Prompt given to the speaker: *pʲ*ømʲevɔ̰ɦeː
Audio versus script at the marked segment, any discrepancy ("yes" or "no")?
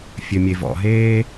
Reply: yes